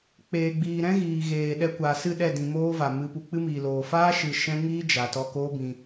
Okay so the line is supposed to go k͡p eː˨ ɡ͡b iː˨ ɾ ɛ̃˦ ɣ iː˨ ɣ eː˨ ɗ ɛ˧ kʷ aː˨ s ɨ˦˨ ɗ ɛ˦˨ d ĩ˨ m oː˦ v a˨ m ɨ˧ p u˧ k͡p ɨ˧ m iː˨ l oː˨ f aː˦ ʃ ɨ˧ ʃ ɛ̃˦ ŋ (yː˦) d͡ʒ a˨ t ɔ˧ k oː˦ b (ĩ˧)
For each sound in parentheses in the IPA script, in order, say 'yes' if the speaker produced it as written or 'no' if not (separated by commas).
no, yes